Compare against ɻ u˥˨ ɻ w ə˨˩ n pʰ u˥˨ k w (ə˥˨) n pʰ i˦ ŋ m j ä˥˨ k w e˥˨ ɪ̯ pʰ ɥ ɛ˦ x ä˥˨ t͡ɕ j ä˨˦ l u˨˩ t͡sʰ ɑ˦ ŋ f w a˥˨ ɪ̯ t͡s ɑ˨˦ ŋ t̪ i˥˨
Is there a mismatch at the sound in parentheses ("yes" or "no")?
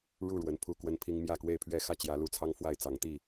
yes